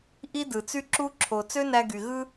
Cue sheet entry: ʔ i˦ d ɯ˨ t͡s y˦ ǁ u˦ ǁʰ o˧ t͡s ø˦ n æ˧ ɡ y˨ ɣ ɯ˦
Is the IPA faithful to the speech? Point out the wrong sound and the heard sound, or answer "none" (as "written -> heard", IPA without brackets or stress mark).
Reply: none